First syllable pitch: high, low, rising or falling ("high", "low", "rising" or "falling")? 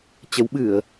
rising